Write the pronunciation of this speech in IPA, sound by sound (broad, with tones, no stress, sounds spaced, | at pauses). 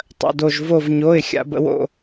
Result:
tˤ ə̰˧˥˧ d o˥˧ ʒ v o˥˧ v ɲ o˧˥˧ ɪ̯ xʲ a̰˧˥ b ə̰˧˥ w o̰˥˧